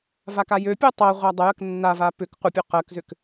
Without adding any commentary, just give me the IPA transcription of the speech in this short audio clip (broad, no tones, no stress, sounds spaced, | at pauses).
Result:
v a k a j ø pʲ ɜ tˤ ɜ ʁʷ a dˤ ə j ə k nː a v a p ʏ k qʷ ə pʲ ɵ q ɜ k z ʏ k